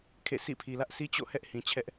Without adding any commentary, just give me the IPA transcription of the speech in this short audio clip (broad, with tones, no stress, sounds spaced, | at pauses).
kʰ ḛ˦˨ s ḭ˦˨ pʰ i˨ l ä˦ ʔ s i˦ t͡ɕ o̰˦˨ h ɛ˦ ʔ h ĩ˨ t͡ɕʰ ɛ˦ ʔ